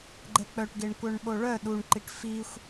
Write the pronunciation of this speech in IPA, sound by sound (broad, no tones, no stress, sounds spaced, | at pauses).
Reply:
ɡ͡ǃ ɛ k͡p œ ʈ ɡ e ɳ kʷ œ ɳ ɓ o ɭ œ ɗ u ɳ ǃ i ʈ f i xʷ